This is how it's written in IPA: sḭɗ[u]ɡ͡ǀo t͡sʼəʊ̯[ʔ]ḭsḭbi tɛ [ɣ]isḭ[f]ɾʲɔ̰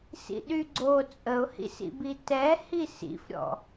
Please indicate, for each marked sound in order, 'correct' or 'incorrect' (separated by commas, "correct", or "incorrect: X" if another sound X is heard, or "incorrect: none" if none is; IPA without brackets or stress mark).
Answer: incorrect: y, incorrect: h, incorrect: h, correct